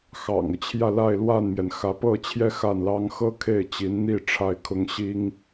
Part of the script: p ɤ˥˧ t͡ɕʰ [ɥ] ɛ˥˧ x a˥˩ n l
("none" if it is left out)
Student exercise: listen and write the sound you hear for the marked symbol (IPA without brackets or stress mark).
j